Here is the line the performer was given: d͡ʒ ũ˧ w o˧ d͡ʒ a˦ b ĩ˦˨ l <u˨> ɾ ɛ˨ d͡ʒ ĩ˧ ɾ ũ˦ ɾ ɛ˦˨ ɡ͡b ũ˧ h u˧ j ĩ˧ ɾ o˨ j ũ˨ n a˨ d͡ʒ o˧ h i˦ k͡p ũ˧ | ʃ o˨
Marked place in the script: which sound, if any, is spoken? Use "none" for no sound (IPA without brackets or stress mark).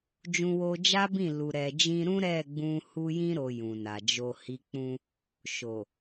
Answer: u˨